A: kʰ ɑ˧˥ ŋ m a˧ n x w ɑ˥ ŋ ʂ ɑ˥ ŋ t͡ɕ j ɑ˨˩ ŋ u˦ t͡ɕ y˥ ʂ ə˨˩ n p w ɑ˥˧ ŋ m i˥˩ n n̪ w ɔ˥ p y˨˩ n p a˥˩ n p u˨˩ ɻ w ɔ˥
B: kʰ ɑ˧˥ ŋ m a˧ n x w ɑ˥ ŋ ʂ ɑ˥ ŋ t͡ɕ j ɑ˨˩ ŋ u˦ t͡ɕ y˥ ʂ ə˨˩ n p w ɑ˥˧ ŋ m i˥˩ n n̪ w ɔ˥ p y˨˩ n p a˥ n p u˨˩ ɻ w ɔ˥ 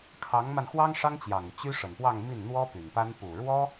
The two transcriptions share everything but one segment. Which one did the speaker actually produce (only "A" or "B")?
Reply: B